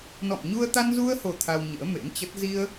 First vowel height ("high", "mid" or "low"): mid